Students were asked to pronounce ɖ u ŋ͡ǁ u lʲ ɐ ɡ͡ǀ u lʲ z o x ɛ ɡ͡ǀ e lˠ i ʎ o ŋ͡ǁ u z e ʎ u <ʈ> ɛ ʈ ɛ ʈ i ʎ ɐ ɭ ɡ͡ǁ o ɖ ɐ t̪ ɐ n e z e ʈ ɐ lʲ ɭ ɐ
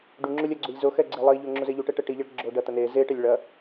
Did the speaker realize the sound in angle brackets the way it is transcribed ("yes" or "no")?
yes